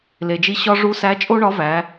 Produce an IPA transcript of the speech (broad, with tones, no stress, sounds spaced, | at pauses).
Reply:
l e˩ d͡ʒ i˧ ɕ ɒ˧ ʐ u˧˥ s æ˧˥ t͡ʃʼ o˥ ɳ ɒ˧˥ v æ˩˧